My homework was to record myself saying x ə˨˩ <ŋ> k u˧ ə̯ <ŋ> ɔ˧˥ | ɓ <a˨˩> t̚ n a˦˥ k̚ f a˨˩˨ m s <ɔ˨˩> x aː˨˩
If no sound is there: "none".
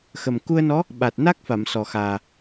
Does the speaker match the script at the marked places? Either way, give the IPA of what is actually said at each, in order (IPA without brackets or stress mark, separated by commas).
m, n, a˨˩, ɔ˨˩